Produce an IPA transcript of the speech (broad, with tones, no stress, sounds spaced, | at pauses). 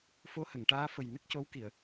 f o˧˥ h ə˨˩˨ ŋ ʈ aː˧˥ f ə˨˩ j n ə˦˥ k̚ c o˧˥ w k i˨˩˨ ə̯